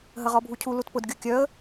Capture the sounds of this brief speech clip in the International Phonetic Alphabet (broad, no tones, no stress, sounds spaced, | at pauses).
ɦ ə ʁ ɔ bʱ u cʰ u l u t p ʊ d ɡʲ u kʲ œ ə̯